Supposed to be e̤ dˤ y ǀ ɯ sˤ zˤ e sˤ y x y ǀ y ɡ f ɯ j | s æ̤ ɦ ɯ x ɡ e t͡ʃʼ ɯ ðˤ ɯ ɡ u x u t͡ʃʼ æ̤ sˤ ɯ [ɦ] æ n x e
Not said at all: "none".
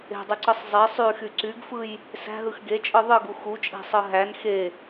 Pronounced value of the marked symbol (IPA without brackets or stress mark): ɦ